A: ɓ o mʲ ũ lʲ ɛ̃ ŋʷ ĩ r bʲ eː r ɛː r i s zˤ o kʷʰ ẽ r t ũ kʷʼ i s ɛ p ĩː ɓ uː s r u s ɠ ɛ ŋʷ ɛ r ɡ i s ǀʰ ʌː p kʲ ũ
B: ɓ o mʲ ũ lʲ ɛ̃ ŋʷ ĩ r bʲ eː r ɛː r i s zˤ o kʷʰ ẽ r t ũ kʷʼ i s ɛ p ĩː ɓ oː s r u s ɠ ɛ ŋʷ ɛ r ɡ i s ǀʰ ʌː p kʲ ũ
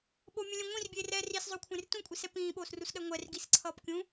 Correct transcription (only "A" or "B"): B